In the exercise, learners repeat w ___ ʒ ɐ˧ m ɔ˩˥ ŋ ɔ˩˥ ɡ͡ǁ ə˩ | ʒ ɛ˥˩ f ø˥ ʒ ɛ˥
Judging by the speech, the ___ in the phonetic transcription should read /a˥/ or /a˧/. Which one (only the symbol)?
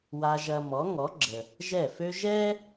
a˧